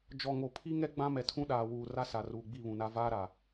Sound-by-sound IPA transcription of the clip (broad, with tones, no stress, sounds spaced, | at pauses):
d͡ʒ ɔ˨ ŋ o˨ pʰ i˦ ŋ ɛ˦ ɡ͡b ã˦ m ɛ˨ tʰ ũ˦ ɗ aː˨ w uː˨ r a˦ s a˨ r uː˨ ɡ͡b i˦˨ β ũ˨ n a˦ v aː˦ ɾ a˨